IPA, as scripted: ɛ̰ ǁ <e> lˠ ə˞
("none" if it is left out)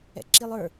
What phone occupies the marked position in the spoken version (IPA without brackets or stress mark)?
i